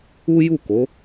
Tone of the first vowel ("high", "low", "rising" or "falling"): high